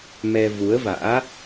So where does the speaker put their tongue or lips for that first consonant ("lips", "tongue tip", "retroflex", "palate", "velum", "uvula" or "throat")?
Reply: lips